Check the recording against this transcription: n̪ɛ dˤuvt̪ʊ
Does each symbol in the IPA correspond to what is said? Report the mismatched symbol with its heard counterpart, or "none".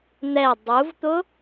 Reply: none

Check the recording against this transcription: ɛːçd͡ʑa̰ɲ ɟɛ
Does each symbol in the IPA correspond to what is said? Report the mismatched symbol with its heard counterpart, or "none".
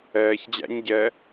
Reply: none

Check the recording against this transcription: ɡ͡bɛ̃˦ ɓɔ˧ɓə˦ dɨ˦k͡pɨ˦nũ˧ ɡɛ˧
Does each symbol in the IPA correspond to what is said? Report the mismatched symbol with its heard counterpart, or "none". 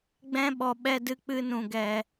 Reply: ə˦ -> ɛ˦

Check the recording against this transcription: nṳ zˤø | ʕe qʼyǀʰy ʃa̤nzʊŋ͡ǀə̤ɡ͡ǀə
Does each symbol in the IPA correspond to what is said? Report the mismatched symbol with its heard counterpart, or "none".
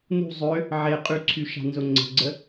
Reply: none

